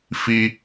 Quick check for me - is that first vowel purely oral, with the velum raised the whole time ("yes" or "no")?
yes